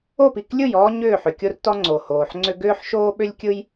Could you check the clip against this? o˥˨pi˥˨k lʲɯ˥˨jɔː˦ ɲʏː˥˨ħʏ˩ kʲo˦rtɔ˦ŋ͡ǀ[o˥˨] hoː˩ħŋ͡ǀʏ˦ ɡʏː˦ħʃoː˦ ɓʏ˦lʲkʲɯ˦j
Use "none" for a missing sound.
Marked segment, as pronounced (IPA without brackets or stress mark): o˩